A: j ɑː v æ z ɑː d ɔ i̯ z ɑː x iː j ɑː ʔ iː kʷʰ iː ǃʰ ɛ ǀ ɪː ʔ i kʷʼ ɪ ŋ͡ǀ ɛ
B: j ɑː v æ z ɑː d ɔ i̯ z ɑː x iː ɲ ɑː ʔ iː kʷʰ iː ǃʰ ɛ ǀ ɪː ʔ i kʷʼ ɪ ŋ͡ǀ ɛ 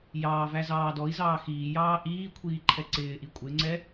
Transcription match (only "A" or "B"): A